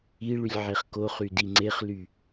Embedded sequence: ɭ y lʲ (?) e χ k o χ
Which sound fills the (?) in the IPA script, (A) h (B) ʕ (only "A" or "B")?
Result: B